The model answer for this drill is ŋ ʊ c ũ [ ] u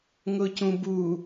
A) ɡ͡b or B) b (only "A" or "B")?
B